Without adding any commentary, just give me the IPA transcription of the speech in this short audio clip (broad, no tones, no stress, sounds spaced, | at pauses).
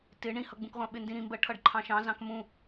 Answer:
t ɪ ɳ ĩ h ʌ ɡ͡b ũ k ʁʷ ɑ̃ ɓ ɪ n d ĩ ɾ ĩ m b ɜ ʈʰ ʌ ɖ ǃʰ ɑ̃ ʃ ɑ̃ z ɑ̃ k m ũ